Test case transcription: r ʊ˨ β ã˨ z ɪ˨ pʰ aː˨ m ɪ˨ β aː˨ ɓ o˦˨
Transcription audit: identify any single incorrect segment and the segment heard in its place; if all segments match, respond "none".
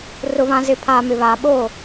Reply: none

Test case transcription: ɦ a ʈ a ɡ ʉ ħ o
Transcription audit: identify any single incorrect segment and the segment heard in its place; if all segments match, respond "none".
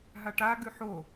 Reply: none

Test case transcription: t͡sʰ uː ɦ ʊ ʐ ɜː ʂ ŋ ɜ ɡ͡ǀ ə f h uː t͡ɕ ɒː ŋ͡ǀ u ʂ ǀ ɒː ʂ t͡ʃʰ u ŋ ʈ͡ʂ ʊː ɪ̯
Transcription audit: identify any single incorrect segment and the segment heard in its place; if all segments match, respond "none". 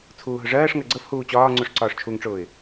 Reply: none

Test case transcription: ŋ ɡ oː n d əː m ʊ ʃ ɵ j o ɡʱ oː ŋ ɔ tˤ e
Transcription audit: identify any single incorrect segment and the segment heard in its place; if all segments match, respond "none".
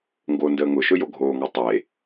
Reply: m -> ŋ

